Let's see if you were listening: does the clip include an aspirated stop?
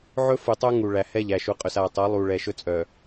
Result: no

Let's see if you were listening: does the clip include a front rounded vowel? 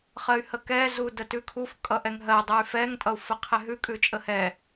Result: yes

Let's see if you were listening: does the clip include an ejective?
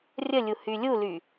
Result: no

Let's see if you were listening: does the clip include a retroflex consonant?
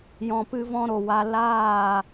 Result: no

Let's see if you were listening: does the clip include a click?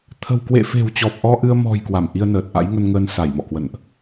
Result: no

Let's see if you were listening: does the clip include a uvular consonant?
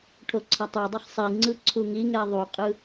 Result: yes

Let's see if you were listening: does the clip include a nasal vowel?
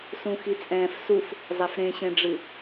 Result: yes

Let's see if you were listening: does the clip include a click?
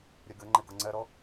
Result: yes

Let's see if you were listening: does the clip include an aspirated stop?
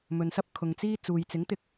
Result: yes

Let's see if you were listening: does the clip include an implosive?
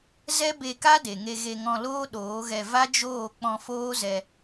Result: yes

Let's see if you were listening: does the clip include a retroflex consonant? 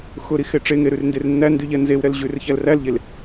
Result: yes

